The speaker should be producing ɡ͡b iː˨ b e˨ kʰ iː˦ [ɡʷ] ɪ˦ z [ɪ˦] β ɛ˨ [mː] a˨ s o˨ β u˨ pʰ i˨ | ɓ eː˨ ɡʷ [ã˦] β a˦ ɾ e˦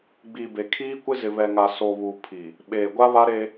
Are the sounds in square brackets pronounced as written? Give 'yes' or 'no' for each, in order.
no, no, no, no

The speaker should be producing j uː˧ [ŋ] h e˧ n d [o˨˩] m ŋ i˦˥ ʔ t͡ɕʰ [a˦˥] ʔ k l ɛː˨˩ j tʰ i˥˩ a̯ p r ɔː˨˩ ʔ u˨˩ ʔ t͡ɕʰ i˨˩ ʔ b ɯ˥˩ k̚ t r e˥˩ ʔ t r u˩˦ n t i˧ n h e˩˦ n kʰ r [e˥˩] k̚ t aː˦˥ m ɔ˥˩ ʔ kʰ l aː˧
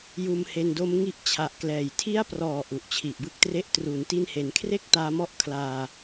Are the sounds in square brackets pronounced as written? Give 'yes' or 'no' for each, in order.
no, no, no, yes

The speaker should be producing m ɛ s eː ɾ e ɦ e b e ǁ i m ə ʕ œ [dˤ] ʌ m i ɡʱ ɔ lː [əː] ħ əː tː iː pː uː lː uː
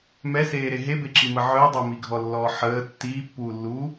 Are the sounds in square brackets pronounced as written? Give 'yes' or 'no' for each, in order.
yes, no

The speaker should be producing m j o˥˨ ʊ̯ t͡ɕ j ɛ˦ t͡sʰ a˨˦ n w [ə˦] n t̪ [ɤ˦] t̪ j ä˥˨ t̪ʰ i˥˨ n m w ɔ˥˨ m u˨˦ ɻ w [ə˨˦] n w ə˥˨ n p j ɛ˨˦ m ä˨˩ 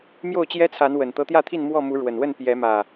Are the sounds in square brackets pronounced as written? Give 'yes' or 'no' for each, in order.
no, yes, no

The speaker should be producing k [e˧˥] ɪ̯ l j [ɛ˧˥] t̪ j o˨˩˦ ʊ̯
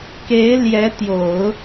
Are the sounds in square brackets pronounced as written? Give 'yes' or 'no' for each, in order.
yes, yes

